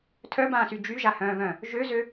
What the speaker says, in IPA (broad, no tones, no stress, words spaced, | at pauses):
tʰœbãːsy d͡ʒyʒahœ̃ːvœ̃ | ʒøzø